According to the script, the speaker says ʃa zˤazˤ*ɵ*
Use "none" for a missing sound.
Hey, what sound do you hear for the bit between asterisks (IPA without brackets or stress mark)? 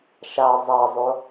o